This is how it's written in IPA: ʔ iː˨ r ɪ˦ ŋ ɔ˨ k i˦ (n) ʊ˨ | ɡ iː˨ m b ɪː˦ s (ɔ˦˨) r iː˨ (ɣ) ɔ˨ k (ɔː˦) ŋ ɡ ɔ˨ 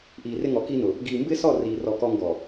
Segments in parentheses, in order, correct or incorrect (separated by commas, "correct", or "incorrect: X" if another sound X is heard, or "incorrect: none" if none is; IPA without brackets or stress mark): correct, correct, incorrect: r, correct